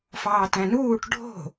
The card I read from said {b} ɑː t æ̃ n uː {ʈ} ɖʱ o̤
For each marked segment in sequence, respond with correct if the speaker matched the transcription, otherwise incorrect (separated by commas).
incorrect, correct